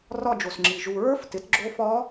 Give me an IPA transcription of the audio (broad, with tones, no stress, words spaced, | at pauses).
rɒ˥˧d͡ʒo˨sŋ͡ǁi˨ ʒu˨ɹə˞˦˥f tɪ˨˥tɡ͡ǁo˦˥ fɒ˦˥